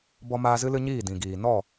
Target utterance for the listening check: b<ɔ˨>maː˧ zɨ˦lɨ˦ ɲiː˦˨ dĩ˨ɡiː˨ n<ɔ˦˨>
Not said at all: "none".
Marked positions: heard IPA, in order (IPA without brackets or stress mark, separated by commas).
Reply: ɔ˧, ɔ˦˨